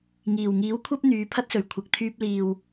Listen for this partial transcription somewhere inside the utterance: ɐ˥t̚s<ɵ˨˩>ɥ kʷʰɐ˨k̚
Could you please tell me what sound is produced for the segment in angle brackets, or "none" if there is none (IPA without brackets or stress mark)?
ɵ˨˩